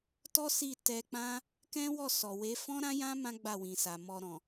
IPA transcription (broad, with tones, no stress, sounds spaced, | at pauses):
t ɔ˦ s i˦˨ t ɛ˧ k͡p ã˦ | k ɛ̃˦ w ɔ˦˨ s ɔ˨ w e˨˦ f ɔ̃˦ ɾ ã˦ j ã˦ m ã˦ ɡ͡b a˦˨ w ĩ˨ s a˨ m ɔ˧ ɾ ɔ̃˨